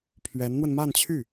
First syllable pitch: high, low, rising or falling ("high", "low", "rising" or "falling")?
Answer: rising